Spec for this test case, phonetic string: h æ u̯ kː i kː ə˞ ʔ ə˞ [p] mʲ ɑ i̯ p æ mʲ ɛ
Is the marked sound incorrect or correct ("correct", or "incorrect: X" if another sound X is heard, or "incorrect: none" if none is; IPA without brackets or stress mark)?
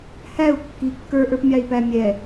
correct